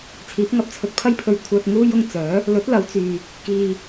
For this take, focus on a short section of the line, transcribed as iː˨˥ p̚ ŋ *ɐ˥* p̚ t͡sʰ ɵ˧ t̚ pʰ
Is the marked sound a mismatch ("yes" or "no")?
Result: yes